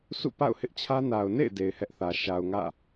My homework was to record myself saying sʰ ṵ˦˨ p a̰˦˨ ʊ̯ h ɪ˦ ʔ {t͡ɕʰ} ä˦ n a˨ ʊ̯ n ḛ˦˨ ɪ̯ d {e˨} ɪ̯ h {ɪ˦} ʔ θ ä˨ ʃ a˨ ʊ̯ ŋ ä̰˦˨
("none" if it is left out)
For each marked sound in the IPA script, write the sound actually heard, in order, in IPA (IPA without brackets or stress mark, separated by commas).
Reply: t͡ɕʰ, e˨, ɛ˦